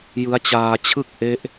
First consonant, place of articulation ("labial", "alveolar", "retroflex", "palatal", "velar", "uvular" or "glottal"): palatal